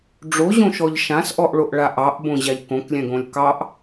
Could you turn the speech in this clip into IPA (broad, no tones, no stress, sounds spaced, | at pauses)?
ɖ͡ʐ o ʑ õ ʃ ɔ ʎ ʃ ã s ʔ ɔ ʔ ɭ o ʔ ɭ a ʔ ɑ ʔ b õ ʑ a ʎ k õ k lʲ ɛ̃ ɡ õ lʲ k ɑ ʔ